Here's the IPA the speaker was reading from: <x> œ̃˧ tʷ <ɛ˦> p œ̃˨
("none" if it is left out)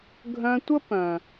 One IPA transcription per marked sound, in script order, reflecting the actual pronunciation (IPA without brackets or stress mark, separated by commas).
ɡʱ, ə˦